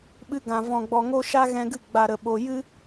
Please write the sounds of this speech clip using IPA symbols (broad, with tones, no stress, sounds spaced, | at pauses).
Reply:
ɓ ɨ˧ ɡ ã˨ v ɔ̃˨ ɡ͡b ɔ˨ ŋ o˧ ʃ a˦ ɣ ɛ̃˧ ɡ ɨ˦˨ ɡ͡b a˨ ɾ ə˨ ɓ o˨ j ɨ˦